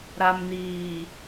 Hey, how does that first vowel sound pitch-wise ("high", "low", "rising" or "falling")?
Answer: low